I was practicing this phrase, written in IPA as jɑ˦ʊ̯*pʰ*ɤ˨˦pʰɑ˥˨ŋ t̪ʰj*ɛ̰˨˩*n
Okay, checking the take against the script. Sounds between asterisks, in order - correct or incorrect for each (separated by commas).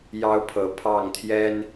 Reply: correct, incorrect